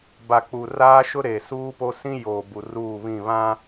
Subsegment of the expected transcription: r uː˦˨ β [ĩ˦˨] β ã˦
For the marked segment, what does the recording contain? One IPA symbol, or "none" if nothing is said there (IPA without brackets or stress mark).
ĩ˦˨